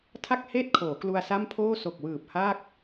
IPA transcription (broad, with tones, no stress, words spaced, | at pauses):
tʰa˥˩k̚ heː˥˩t̚kʰoː˩˦ klu˧a̯sa˥˩mpʰoː˥˩ so˨˩k̚wɯː˨˩p̚ha˥˩k̚